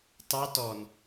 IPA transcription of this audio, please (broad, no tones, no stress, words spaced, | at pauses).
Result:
tɑ tɔn